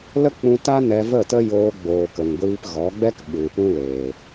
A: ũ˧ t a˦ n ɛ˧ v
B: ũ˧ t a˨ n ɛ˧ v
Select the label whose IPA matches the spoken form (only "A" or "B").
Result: A